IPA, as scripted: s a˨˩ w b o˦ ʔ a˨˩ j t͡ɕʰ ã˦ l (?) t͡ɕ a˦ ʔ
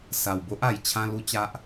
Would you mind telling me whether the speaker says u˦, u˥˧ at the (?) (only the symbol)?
u˦